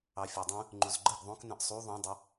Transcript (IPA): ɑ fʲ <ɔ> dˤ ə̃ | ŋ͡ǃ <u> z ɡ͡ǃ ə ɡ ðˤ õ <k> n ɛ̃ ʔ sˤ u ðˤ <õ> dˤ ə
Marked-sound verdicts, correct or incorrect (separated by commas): correct, correct, correct, correct